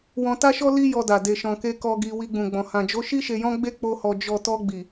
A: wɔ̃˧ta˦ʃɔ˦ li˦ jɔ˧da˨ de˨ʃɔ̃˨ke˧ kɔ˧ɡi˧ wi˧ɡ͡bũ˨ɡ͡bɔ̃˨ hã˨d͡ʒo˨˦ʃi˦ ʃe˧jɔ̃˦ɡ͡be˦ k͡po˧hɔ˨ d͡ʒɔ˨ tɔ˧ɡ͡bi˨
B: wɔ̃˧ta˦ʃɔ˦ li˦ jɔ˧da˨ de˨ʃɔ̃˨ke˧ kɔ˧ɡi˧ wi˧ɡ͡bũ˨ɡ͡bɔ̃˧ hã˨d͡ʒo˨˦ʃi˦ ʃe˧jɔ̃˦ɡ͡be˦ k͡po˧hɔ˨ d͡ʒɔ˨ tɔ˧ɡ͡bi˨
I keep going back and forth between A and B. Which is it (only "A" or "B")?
A